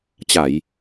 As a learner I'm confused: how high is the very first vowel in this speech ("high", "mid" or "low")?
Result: low